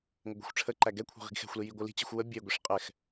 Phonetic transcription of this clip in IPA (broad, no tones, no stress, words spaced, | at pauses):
ŋəɡʷi̤xʷʈ͡ʂʰəǃæ ɡɛkʷʰɛ̤ ʁi̤ɡxɛ̤xʷli jiɡʷɨli̤t͡ɕi̤xʷ wə bʲeɡʷiʂ qʼɛx